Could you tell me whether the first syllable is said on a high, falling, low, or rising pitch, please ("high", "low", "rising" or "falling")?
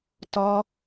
high